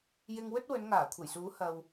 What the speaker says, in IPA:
j ɪ˧ ŋ w ɵ˥ t̚ w ɵ˨˧ n ŋ aː˨˩ kʷʰ ɐ˨˩ j s uː˨˥ h ɐ˧ w

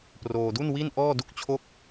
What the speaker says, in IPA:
p r oː˧ d u˥˩ n w i˥˩ n ʔ ɔː˥˩ d u˥˩ k̚ t͡ɕʰ o˥˩ k̚

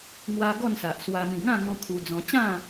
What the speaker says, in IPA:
ŋ w a˧ ɡ ɔ˥˧ n s a˨ ʔ s w a˧ m ĩ˨˩ ŋ ã˥˧ ŋ ɔ̃˧ kʰ u˧ d͡z ɔ̃˧ t͡ɕ ã˥˧

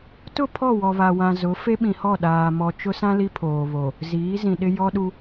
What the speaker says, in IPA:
t ʊ˦˨ pʰ ɔ˦˨ w ɔ˨ β a˨ w ã˨ z ʊ˨˦ f e˦ ɓ ĩ˨ h ɔ˦˨ ɗ aː˨ m ɔ˨ t͡ʃ ʊ˦ s ã˦ l i˦ pʰ oː˨ β o˨ | z iː˨˦ z ĩ˨ ɗ ɪ˦ j ɔ˦ ɗ u˦

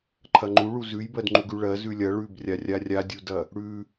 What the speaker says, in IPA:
ǃʰ ɐ ŋ͡ǃ u ɭ u z ʉ j b ɜ d ŋ͡ǃ u ɡ ʉ ɭ ɜ z ʉ lʲ ɐ ɭ ʉ b rʲ a rʲ a rʲ a dʲ u d ɐ | ɽ ʉ

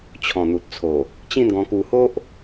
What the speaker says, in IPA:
t͡ɕʰ ɔ̃˨˩ n̪ u˨ t̚ t͡sʰ o˨˩ | t͡ɕ ĩ˥˧ n ɡ ɔ̃˧ k u˧ h o˦ ʔ

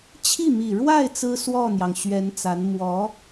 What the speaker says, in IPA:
t͡ɕʰ i˥˩ m i˨˩ ɻ w a˥˩ ɪ̯ t͡s ɹ̩˥ s w ɔ˥˩ n̪ j ɑ˩ ŋ ɕ ɥ ɛ˧˥ n t͡s a˧˥ n m w ɔ˧˥

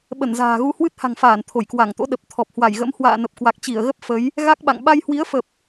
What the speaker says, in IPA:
ɓ ə˧˩ n z a̤ː˨˩ ɣ u˧ h w ɨ˦˥ t̚ h a̤˨˩ ŋ f aː˧˩ n t̪ʰ o˧˩ j k w a˧˩ ŋ t̪ o̰˧˥ ɗ ə˨˩ p̚ t̪ʰ ɔ˨˩ p̚ h w a˧˩ j ɣ ə̰˧˥ m h w a̰ː˧˨ n ə˨˩ p̚ k w a˨˩ k̚ t͡ɕ i˧˩ ə̯ ɣ ə˦˥ p̚ f ə˨˦ j | ɣ a˦˥ k̚ ɓ a̰˧˨ ŋ ɓ a˧ j h w i˨˦ ə̯ f ə˨˩ p̚

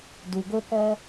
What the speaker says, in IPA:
d u˩ ɡ o˥ k ɔ˥

